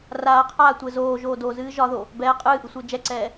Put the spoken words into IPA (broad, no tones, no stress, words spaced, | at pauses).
raːqʰaːtʷɘ zoːʒoː dozɨː ʒɒðo | bɛː qʼɨːʔɨsʷɘː d͡ʒɛǀɛː